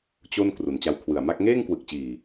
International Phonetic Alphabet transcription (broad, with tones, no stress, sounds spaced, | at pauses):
t͡ɕ o˥˩ n k r u˩˦ n t͡ɕ a˧ w kʰ w ɯ˨˩ a̯ m a˥˩ k̚ ŋ eː˥˩ ŋ k w ɯ˨˩ k̚ t͡ɕ iː˨˩